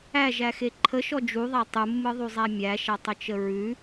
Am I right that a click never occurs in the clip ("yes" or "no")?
no